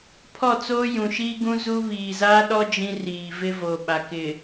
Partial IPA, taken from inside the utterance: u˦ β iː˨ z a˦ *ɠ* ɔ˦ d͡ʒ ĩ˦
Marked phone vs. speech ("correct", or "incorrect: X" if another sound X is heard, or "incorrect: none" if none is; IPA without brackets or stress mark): incorrect: ɗ